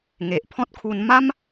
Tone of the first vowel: low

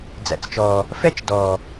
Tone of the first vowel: low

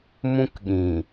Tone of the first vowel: high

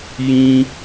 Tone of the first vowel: high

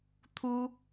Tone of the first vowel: high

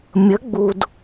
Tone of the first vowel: rising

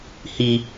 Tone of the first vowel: high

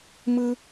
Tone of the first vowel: high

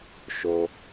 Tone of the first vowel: low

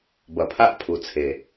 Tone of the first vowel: low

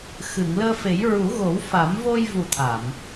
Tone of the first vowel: low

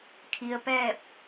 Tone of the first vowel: low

